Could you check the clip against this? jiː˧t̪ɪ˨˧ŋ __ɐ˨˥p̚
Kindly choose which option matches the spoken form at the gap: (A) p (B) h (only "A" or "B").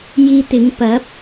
A